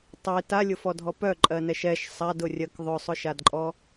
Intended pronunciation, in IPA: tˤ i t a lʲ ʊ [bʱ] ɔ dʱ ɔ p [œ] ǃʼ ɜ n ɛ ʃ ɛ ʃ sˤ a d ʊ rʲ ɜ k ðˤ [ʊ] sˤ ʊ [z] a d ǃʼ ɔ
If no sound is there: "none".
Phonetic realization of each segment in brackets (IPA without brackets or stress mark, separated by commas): f, œ, ʊ, ʃ